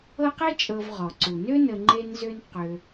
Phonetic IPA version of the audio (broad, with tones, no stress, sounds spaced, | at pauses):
ɤ˦ q e˥ t͡ʃʼ ɤ˨ v ʁ ɔ˩ ǀ u˩ n ø˥ n ə˨ ŋ͡ǃ e˦ n z ø˦ n q ø˨